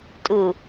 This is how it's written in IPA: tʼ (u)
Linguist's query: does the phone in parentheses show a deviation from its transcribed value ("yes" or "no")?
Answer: no